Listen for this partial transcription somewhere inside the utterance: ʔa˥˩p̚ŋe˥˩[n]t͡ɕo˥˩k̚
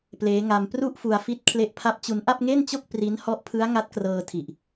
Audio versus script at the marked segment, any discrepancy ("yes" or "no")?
no